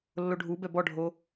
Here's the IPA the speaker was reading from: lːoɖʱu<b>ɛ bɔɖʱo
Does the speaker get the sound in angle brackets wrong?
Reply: no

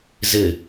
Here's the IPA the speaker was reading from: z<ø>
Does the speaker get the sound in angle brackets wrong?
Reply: yes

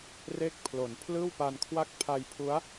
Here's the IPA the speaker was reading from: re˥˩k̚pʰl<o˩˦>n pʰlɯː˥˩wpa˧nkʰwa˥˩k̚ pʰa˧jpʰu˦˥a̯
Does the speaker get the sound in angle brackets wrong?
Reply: no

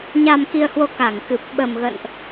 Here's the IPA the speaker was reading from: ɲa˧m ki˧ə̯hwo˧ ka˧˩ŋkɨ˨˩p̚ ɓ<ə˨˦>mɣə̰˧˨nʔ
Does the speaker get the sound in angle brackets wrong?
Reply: yes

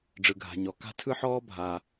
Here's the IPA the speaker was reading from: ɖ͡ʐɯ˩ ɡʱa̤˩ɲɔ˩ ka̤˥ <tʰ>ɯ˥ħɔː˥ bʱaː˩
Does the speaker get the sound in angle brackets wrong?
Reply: no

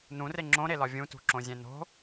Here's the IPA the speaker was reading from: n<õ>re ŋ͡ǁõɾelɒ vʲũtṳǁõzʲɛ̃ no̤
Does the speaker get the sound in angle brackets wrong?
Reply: yes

